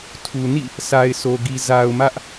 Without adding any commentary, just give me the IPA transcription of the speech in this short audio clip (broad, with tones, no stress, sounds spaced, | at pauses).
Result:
tʰ u˨ n ḭ˦˨ | sʰ a˨ ɪ̯ sʰ o˨ ɡ i˨ z a˨ ʊ̯ m ä˦ ʔ